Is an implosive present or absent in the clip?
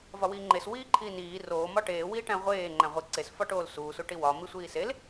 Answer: absent